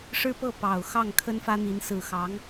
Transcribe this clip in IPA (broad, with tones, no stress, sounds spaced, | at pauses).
ʂ ɻ̩˥ p ɤ˥˩ p ɑ˨˩ ʊ̯ x ɑ˥˩ ŋ kʰ ə˥ n f ä˥ n̪ i˧˥ n s ɹ̩˨˩ x ɑ˧˥ ŋ